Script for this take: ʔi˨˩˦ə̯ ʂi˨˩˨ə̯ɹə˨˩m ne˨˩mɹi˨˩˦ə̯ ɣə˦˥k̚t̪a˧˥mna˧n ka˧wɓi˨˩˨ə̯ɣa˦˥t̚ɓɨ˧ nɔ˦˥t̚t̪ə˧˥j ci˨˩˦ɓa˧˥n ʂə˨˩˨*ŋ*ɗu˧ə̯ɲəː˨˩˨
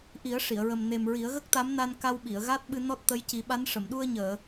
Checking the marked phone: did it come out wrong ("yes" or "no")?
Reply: yes